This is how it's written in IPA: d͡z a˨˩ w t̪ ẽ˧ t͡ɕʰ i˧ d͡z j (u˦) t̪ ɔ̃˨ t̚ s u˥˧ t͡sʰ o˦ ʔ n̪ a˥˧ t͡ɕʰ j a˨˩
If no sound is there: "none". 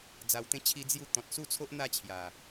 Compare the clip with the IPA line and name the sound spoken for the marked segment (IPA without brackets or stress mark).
u˧